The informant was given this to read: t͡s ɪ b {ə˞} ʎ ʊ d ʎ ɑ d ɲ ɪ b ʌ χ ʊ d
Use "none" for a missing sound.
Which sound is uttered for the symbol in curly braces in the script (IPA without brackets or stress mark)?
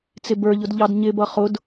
ə˞